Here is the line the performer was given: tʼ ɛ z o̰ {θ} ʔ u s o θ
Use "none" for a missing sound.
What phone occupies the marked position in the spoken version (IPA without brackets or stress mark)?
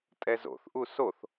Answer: θ